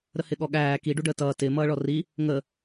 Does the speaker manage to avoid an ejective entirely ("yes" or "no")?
yes